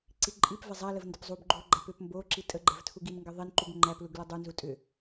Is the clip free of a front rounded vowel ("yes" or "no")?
no